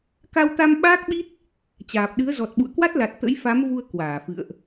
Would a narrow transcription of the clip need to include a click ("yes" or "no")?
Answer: no